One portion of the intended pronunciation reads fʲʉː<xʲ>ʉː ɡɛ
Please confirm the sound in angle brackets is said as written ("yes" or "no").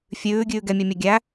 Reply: no